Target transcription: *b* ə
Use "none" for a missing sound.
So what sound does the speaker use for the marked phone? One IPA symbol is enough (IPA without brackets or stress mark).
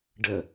ɖ